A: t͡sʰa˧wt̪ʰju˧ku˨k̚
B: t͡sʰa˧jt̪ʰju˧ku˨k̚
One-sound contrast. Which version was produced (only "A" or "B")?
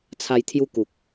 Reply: B